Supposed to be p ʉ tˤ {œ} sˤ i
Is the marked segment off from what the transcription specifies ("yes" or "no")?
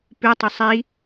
no